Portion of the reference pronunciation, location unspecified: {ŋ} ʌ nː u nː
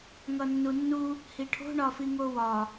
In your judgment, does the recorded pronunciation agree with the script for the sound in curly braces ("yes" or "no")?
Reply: yes